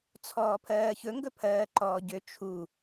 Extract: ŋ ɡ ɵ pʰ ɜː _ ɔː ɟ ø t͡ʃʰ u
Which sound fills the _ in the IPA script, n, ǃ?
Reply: ǃ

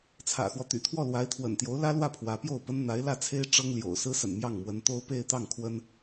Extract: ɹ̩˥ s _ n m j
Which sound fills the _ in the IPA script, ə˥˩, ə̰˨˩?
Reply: ə̰˨˩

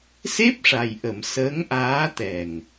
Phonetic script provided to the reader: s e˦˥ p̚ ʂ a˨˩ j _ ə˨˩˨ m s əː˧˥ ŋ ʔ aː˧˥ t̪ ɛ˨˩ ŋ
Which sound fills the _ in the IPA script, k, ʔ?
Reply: ʔ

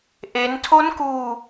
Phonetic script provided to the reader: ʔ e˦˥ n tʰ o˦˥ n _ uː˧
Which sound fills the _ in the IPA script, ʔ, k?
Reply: k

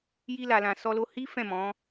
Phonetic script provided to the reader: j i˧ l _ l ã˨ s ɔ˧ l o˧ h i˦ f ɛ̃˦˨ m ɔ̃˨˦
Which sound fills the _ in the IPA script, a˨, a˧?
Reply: a˨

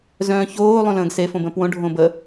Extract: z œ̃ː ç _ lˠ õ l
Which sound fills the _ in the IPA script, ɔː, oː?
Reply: oː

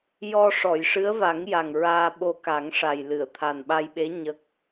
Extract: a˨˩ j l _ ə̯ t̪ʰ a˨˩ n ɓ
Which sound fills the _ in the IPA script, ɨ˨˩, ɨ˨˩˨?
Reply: ɨ˨˩˨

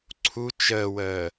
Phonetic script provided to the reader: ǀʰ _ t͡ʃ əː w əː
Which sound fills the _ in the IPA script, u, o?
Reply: u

